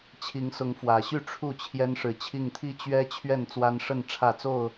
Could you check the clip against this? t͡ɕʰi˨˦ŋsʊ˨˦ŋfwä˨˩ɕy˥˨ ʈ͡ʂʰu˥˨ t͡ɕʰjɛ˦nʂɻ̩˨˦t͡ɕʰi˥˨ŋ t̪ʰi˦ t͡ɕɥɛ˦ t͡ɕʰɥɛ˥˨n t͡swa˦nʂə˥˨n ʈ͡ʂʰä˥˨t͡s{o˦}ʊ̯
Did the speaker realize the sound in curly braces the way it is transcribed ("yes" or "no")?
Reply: no